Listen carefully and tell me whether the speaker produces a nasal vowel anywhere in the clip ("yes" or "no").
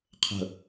no